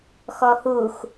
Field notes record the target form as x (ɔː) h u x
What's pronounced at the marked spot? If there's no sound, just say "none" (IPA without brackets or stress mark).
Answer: ɔ